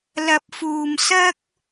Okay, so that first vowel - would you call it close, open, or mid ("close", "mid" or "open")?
open